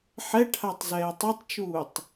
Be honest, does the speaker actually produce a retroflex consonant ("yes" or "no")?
yes